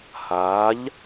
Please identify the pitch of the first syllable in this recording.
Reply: rising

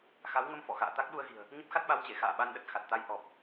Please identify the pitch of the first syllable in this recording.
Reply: rising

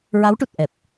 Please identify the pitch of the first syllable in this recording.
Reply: rising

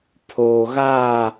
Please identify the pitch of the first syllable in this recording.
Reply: low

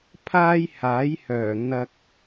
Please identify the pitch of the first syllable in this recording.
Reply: high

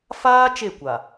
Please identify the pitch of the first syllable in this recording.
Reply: high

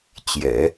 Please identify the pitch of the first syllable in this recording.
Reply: low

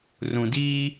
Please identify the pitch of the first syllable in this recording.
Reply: low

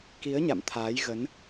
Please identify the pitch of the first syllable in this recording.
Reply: rising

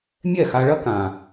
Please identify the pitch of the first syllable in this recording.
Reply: falling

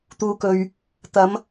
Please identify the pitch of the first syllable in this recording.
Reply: low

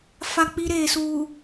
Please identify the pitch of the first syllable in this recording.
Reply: high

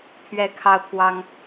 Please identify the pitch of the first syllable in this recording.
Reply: high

